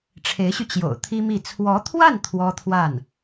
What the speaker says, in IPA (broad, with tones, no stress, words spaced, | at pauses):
ʈ͡ʂʰe˧˥ɪ̯ɕy˧t͡ɕjo̰˨˩ʊ̯ t̪ʰi˥mi˥˩ t͡sʰwɔ˧˥t̪ʰwa˥˩n t̪ʰwɔ˥t̪ʰwa˥˩n